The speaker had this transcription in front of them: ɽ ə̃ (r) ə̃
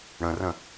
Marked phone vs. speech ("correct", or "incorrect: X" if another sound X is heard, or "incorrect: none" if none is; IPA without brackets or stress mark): correct